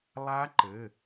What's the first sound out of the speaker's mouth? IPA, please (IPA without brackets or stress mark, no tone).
lˠ